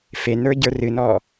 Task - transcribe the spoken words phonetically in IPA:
f e n ə˞ ɟ ə˞ r ɨ n ɔ

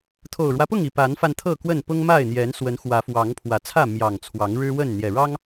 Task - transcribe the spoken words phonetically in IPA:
t̪ʰ o˨˩ ʊ̯ ɻ w ä˦ p ʊ˥˨ ŋ i˨˩ p a˨˦ n f a˧ n t̪ʰ ɤ˥˨ k w ə˥˨ n p ʊ˦ ŋ m a˥˨ ɪ̯ n̪ j ɛ˨˦ n s w ə˨˦ n x w ä˨˦ f w ɑ˨˦ ŋ pʰ w ä˨˩ t͡sʰ ä˥˨ m j ɑ˨˩ ŋ t͡sʰ w ɑ˨˦ ŋ ɻ ɻ̩˦ w ə˥˨ n n̪ j ɛ˨˩ ɻ ɑ˦ ŋ

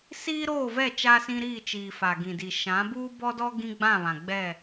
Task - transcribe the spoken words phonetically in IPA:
s iː˦ ɾ oː˦˨ v ɛ˦˨ t͡ʃ a˦ s ĩ˦ ɾ iː˦˨ t͡ʃ iː˨ f a˨ ɡ ĩ˨ d i˨ ʃ ã˨˦ b uː˦ b ɔ˦ d ɔ˦ ɡ ĩ˦ ɡ͡b ã˦˨ β ã˨ ɡ͡b ɛ˦˨

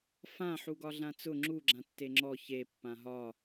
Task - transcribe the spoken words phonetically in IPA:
f ã ħ u ɡ ɒ ɮ ã t͡s ʊ ŋ͡ǁ u ɡ͡ǁ ã tː e ŋ͡ǁ ɔ ç e pː ã ɦ ɒ

